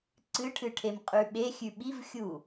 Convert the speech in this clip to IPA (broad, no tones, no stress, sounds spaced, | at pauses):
ǀ ɨ ʈʰ ɨ ʈʰ e m qʼ ʉ ɓ e xʲ ʉ ɓ i v xʲ u